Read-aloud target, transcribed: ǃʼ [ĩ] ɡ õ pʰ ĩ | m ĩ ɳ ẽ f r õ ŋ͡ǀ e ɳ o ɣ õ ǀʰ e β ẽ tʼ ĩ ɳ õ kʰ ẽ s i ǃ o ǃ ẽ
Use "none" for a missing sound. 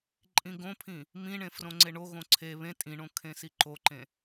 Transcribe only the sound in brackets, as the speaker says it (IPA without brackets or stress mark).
ĩ